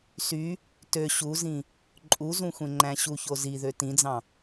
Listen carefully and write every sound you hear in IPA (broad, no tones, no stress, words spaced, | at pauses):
sy | tø ɕuzĩ | ǃʼuzũxʷẽ ŋ͡ǃæ̃ɕu çoziðø tĩd͡zɑ̃